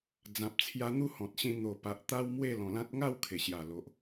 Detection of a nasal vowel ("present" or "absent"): present